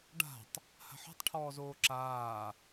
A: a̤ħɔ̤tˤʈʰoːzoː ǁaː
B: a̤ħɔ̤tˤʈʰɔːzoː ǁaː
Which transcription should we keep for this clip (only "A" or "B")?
B